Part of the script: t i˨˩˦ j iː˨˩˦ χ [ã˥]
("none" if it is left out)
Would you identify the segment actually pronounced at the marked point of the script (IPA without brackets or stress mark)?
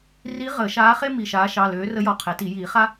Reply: a˥